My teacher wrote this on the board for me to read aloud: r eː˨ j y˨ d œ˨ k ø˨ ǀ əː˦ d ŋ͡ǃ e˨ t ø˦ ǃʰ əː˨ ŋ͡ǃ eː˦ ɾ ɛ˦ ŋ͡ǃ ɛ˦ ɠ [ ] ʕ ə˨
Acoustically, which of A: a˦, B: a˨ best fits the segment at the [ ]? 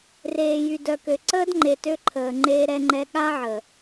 A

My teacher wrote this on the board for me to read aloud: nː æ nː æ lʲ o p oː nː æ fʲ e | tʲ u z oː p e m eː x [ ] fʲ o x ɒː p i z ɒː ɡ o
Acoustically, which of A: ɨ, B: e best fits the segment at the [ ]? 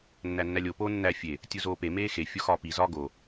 B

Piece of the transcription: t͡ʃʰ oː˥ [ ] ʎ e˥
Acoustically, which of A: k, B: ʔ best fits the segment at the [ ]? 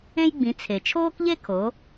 A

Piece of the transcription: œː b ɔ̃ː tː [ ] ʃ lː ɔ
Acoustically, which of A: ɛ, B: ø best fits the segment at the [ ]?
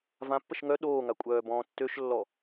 B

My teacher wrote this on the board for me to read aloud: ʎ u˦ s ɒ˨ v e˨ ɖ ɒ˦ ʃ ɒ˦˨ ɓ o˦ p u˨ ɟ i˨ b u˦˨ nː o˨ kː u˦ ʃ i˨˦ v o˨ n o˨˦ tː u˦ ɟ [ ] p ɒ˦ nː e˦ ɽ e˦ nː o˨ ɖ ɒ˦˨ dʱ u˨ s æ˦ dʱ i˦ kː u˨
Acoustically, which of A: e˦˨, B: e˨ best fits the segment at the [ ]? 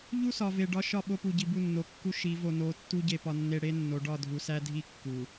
A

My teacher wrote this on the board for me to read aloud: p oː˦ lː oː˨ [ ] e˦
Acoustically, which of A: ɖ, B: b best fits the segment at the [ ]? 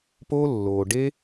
A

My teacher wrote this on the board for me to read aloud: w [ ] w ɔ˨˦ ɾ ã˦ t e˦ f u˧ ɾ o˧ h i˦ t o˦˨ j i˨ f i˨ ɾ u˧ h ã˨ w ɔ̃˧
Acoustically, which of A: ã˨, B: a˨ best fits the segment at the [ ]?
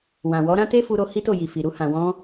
A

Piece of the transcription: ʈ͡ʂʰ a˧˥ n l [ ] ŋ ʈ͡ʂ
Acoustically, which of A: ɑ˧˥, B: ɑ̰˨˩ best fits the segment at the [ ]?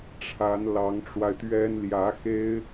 A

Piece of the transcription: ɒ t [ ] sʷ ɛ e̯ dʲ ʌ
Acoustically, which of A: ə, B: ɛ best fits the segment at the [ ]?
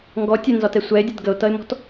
B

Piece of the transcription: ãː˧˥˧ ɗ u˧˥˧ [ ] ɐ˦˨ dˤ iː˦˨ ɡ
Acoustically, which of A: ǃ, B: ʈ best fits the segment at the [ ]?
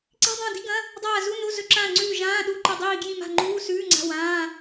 A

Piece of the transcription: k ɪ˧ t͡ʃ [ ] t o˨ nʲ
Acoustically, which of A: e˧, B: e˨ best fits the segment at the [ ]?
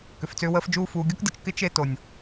A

